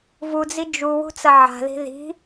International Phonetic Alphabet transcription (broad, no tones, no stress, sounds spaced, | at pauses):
v u d͡z i d͡ʒ u w ṳ t͡s ɐ ʕ a̤ ð i̤ ð i̤